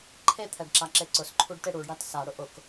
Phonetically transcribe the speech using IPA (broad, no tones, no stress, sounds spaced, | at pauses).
ǃʰ e t̪ʰ ɛ ɖ ǁ a ǁ e ǀ ʊ s ǃʰ u ɖ t e ɽ u ɖ ɽ a t s a ɽ ʊ ʔ ʊ k